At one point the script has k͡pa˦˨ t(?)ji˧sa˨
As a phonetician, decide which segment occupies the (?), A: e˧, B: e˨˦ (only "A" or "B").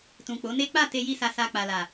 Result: A